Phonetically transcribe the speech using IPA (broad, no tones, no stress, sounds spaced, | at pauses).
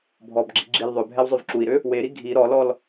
bʱ ɔ b ɡ͡ǁ i ɡ͡ǁ i l ðˤ ø bʱ ɛ w zˤ ø v ǁ u i̯ ɾ ø | w e ɾ i ɡʱ i ɾ ɔ l ɔ l